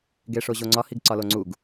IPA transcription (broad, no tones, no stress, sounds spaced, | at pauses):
ɡ e ʂ o ʑ o ŋ͡ǀ ɒ h i ɡ ǀ ɒ l o ŋ͡ǀ u ɡ